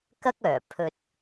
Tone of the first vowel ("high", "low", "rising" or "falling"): high